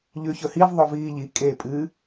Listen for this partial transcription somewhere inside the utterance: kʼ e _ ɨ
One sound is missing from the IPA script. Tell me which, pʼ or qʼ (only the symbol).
pʼ